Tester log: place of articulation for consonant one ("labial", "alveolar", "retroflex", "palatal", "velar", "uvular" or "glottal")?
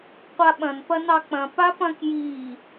uvular